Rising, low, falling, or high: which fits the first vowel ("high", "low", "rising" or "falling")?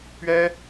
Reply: high